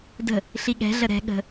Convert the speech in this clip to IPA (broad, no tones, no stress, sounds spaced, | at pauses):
d ə̤ | ɬ i ɠ ɛ̤ ɮ ə ɾ ɛ̤ ɠ ə̤